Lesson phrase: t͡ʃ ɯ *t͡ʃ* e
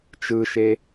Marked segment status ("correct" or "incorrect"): incorrect